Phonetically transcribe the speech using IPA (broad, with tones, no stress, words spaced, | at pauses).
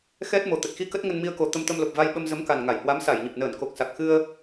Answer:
xɛ˦˥t̚ mo˨˩t̪ə˨˩t̚xi˧ kə˦˥t̚ŋə˧nmi˧ə̯ko˨˩ t̪ə˧mt̪ə˧mlo˨˩p̚ va˧j ɓə˧mzə˨˦m ka˨˩n ŋa˧˩jhwa˨˦msa˧˩jɲə˨˩p̚ nəː˧˩nko˨˩k̚sa˨˩k̚ xɨ˧ə̯